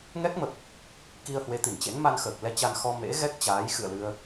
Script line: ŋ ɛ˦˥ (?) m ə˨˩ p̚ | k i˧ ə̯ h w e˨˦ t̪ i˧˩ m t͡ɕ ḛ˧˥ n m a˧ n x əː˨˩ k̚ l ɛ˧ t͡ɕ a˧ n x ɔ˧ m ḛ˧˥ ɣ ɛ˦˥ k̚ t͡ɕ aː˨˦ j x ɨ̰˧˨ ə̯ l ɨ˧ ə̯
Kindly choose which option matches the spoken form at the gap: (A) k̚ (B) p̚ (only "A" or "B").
A